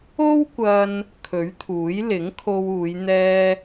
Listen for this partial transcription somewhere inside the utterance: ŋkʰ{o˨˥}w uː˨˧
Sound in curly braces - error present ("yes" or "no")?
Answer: yes